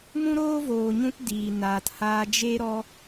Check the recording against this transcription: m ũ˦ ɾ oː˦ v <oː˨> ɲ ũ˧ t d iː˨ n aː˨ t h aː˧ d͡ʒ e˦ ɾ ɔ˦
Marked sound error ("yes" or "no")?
no